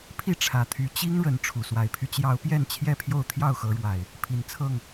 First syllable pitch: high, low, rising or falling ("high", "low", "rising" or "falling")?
falling